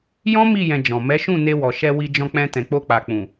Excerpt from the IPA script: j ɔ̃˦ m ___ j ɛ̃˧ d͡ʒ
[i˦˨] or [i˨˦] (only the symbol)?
i˦˨